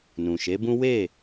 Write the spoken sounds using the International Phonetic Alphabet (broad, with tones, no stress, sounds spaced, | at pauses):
n ũ˨ ʃ e˨˦ b ũ˦ w e˦˨